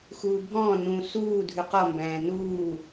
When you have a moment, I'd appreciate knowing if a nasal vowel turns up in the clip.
yes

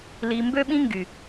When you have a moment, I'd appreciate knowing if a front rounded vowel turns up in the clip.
yes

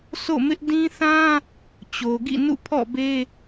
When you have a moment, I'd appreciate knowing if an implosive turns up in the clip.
no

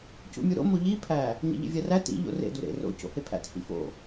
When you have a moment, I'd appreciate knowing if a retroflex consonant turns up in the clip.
no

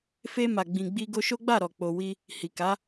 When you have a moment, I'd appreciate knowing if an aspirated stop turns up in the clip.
no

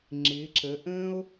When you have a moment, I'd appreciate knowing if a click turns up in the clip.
yes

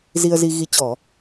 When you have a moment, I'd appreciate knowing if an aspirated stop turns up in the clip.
no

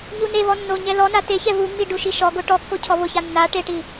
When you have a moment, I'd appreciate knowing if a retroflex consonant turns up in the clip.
yes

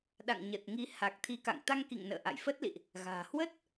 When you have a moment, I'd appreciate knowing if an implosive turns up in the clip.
yes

